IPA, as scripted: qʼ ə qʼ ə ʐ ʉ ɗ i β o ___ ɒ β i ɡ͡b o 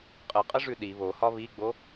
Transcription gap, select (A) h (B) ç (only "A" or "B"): A